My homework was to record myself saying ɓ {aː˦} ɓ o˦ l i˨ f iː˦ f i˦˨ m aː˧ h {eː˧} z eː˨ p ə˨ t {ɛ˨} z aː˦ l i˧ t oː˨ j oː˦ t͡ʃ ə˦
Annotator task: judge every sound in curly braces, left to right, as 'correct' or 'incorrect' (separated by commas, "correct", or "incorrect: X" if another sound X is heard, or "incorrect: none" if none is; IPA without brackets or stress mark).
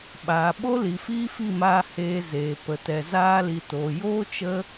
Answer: incorrect: aː˨, correct, correct